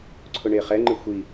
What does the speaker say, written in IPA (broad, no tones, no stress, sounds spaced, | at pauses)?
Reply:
ǀʰ ʊ ɳ e χ ɛ ŋ͡ǃ ɪ xʷ i